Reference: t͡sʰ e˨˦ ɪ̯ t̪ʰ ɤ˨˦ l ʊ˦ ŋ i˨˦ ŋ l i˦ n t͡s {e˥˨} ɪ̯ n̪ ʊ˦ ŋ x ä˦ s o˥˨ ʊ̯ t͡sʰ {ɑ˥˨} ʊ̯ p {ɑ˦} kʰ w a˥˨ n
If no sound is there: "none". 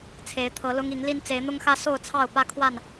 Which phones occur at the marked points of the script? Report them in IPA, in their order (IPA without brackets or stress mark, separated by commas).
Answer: e˨˦, ɑ˥˨, ä˦